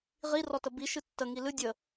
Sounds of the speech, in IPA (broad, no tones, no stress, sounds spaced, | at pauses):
ʁ i r ɔ t ə b i ʃ ɨ tː ə ŋ i l ɨ dʲ ə